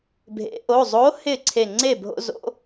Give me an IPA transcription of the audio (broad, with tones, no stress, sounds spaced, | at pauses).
bʱ ḛ˩˧ ʔ o˩˧˩ zˤ o˨˥ h ɪ˥˩ ǀʰ e˧˩ ŋ͡ǀ e˥˩ bʱ o̰˦ z o̰˨˥